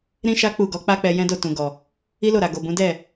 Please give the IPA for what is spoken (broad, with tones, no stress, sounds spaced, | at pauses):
ɾ ĩ˦ ʃ a˦ k͡p u˦˨ ɡ ɔ˨˦ k͡p a˦ k͡p ɛ˧ j ɛ̃˦ d o˦˨ t ũ˨ ɡ ɔ˨ | i˦ l o˦˨ ɾ a˨ ɡ o˨ b ũ˨˦ d ɛ˦˨